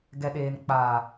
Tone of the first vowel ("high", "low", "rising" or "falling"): low